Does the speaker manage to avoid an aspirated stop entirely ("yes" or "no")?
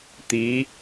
yes